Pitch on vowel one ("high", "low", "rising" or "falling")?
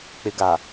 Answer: low